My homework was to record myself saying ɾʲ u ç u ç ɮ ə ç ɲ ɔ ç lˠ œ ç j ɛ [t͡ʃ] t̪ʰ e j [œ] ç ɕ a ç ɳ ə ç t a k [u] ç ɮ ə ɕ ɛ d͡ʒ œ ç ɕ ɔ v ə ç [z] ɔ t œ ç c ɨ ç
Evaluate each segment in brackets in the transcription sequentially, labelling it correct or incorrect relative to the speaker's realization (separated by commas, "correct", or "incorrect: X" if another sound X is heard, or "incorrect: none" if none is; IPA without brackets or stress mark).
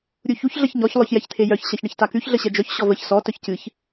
incorrect: ç, correct, incorrect: ʉ, incorrect: s